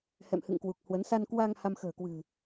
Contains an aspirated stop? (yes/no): no